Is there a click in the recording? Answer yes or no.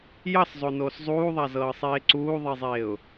yes